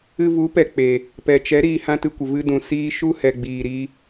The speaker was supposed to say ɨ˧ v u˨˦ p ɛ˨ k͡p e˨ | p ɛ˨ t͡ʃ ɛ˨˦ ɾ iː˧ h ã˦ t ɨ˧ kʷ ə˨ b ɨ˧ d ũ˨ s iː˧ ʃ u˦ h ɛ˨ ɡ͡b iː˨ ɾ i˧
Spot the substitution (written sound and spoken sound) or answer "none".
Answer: b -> v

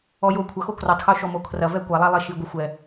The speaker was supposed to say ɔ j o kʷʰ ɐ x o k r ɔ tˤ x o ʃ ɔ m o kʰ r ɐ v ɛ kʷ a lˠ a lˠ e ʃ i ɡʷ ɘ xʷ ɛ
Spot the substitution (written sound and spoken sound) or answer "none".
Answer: none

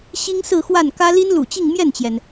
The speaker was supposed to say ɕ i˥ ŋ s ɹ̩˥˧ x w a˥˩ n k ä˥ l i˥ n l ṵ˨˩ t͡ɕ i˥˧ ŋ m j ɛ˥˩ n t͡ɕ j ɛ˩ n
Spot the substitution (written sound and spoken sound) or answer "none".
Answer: none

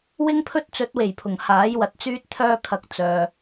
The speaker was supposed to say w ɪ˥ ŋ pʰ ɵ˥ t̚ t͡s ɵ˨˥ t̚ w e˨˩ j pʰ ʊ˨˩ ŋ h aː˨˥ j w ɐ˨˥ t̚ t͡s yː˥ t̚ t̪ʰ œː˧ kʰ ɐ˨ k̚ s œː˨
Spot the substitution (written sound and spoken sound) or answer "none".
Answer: s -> t͡s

